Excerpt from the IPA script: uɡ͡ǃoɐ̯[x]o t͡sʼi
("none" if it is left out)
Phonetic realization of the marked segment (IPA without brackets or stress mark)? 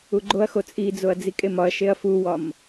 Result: x